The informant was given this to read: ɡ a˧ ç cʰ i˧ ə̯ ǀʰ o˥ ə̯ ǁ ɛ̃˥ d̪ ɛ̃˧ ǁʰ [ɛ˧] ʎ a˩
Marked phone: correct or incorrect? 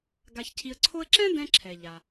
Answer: incorrect